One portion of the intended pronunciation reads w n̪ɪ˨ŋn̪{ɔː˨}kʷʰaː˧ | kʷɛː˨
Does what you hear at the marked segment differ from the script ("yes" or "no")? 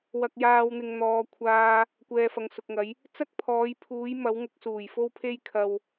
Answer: no